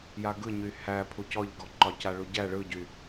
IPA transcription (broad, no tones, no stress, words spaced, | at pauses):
jaɡɯɲy hæ pʰucɔʎɡɔǃɒ caɭuɟæ ɭɯɟy